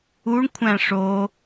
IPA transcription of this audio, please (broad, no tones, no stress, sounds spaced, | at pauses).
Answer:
u ɳ kʷʰ æ̃ ʂ o